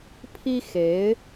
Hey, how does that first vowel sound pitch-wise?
high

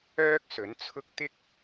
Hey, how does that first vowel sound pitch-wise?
high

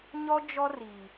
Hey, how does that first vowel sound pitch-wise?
high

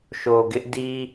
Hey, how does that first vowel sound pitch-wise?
low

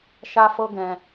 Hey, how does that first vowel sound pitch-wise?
high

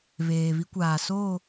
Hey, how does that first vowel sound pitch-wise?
low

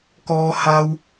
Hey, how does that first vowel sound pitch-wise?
low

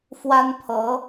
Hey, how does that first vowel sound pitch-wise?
high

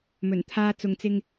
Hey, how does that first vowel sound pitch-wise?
low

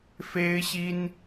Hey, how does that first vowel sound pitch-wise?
high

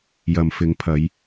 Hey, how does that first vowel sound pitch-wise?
low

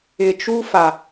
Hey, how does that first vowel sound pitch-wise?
low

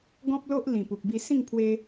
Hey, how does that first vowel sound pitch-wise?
high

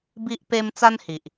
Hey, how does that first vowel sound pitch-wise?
high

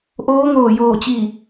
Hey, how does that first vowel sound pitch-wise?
rising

